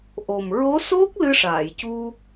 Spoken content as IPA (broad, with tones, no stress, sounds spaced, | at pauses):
ʔ o˨˩ m ɹ o˧˥ s o˦˥ k̚ l ɨ˧ ʂ aː˨˩˨ j c u˧